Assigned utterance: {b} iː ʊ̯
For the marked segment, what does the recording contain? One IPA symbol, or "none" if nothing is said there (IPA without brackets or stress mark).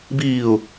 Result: b